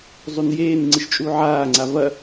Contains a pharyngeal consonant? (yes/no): yes